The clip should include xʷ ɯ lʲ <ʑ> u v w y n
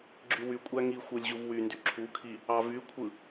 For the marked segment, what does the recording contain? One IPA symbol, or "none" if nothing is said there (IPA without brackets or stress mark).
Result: ʑ